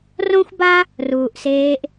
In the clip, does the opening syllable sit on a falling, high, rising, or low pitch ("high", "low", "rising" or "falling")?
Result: high